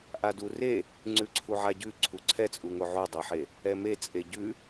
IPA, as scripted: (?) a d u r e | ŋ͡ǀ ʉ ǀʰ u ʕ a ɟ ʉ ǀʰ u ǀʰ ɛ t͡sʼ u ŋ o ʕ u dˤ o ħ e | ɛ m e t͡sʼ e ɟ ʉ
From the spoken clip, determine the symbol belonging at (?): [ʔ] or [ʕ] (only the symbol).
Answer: ʔ